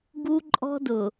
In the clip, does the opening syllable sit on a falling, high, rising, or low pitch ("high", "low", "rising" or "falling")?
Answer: high